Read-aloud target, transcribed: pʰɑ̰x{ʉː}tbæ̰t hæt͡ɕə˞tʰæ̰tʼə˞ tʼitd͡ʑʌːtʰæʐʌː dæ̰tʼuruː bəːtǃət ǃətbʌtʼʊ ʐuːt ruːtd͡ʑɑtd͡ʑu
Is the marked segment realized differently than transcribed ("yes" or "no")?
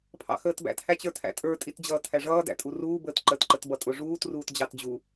yes